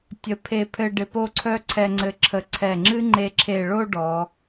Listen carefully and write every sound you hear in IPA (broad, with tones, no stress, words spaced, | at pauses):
tʲə˧ pʰe˧pʰɘ˧ ɖɪ˧po˥˧ǀʰœ˥ ǀʰɛ˧ŋ͡ǀɘ˧˩ ǁʰə˧˩ǀʰɛ˧˩ŋ͡ǁɨ˥ ŋ͡ǃe˧ǁʰe˧˩ɭo˥˧ ɖɔ˩˧